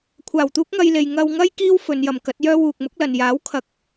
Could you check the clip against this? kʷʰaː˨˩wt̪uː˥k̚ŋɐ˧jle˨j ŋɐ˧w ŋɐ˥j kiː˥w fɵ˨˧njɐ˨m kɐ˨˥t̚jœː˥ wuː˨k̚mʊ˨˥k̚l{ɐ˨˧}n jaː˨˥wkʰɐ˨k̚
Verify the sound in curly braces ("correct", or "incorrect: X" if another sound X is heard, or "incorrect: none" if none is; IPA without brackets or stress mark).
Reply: incorrect: ɐ˨